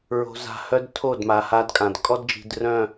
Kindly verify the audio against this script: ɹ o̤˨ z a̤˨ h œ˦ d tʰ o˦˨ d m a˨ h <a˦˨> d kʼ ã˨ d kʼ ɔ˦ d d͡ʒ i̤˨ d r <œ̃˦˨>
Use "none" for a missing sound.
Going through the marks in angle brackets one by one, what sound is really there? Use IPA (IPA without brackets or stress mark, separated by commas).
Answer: a˦, œ̃˦˨